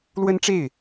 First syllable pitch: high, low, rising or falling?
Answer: high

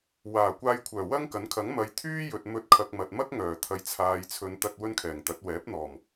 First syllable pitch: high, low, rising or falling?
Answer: low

